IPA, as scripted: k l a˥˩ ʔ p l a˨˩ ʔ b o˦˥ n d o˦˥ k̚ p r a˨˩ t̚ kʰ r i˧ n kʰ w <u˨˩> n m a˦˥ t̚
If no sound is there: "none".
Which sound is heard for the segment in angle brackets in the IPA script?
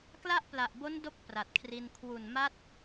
u˨˩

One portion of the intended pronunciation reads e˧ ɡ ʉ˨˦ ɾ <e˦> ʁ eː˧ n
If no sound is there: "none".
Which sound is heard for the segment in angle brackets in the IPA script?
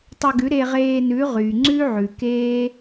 e˧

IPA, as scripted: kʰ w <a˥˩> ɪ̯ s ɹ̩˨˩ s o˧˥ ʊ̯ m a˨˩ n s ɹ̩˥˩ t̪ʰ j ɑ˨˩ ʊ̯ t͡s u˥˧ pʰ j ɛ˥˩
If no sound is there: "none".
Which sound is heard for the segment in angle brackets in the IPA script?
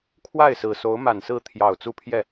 a˥˩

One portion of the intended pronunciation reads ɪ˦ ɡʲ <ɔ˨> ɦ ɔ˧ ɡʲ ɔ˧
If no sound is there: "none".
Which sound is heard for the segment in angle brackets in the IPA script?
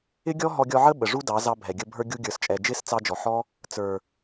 ɔ˦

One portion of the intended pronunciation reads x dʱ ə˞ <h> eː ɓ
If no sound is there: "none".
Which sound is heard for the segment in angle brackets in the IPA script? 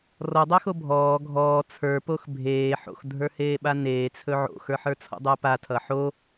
h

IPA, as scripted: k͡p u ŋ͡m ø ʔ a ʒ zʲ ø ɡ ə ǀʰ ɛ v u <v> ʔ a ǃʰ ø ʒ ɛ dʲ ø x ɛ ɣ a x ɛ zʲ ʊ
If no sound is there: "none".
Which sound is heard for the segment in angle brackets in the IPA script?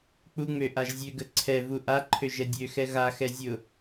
none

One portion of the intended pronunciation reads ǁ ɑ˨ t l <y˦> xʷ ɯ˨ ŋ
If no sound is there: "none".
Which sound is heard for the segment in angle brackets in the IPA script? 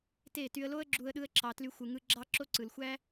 y˧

